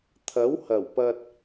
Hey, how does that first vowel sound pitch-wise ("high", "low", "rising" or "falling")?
rising